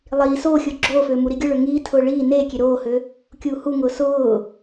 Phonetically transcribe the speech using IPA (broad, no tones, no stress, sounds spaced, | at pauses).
lˠ iː s oː xʲ ʊː ɡ͡ǁ oː f øː m u ɾ i ɡʲ ʊ ɭ ø ŋ iː tʰ ʊː ɭ iː n eː kʲ e ɾ oː h ø | kʲ uː h u ŋ ʊː s ʊː